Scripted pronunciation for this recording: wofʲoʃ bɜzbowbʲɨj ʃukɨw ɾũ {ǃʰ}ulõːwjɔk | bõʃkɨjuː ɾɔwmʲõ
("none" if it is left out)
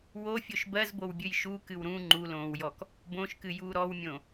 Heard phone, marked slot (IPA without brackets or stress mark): ŋ͡ǃ